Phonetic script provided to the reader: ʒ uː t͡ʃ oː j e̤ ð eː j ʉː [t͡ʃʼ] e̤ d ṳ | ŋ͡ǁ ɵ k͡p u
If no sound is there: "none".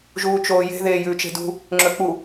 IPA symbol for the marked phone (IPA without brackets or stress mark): t͡ʃ